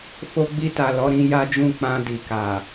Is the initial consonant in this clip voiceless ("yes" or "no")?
yes